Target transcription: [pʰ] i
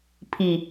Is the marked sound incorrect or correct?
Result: correct